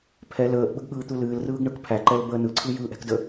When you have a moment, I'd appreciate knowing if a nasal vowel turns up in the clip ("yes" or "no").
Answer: no